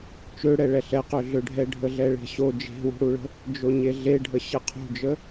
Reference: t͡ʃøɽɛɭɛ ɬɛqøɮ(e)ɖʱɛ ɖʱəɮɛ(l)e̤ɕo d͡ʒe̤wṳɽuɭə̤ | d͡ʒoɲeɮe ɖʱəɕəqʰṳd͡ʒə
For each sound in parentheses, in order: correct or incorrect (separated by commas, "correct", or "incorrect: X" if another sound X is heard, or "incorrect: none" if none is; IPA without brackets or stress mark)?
incorrect: ø, incorrect: ɭ